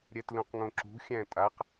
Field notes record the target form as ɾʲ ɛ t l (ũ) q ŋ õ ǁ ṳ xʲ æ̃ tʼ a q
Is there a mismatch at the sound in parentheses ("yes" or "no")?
no